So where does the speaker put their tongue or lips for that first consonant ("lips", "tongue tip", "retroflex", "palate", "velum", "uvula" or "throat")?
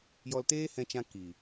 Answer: palate